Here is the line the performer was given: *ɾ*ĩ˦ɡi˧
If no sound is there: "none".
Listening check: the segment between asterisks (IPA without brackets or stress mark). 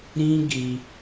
ɾ